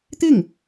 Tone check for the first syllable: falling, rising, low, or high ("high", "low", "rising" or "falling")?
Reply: falling